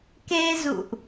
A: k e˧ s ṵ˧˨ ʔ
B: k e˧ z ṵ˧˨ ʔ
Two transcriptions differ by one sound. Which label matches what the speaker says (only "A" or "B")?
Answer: B